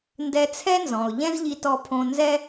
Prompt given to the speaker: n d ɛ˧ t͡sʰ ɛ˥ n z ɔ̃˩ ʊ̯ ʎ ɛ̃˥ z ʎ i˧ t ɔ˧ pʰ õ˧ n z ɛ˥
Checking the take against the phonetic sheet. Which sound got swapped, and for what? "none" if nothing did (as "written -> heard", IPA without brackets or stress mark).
none